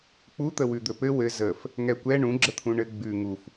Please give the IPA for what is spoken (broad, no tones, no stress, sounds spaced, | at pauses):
k͡p u t̪ ə w ʉ d̪ ɵ p ɘ w ɘ z ə f | ŋ ɛ kʷ ɛ ɳ ũ ɡ͡ǁ ə t̪ʰ ũ ɳ ɘ ɡ͡b ʉ ŋ u f